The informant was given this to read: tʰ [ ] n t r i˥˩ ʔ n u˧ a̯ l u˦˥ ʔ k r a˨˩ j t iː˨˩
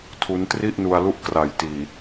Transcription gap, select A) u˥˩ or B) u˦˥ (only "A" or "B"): B